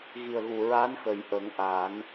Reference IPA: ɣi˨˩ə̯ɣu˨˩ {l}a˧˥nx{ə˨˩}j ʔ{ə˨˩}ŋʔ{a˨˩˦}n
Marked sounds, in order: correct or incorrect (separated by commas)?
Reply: incorrect, correct, incorrect, correct